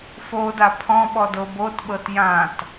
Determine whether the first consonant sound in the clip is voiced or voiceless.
voiceless